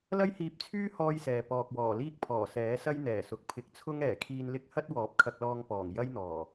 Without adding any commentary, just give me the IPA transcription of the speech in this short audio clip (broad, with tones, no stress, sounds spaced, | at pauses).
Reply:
l ɐ˥ j h iː˧ p̚ t͡sʰ yː˥ h ɔː˥ j s ɛː˨ p ɔː˨ k̚ w ɔː˨˩ l iː˥ k̚ pʰ ɔː˨˩ s ɛː˨˥ s ɐ˥ j n̪ ɛː˨˩ s ʊ˨ k̚ pʰ ɪ˨˥ k̚ t͡sʰ ʊ˥ ŋ ɛː˨˩ kʰ iː˧ n l ɪ˥ k̚ h ɐ˥ t̚ w ɔː˨˥ p̚ kʰ ɐ˧ k̚ l ɔː˧ ŋ p ɔː˨˩ ŋ j ɐ˥ j n̪ ɔː˨˩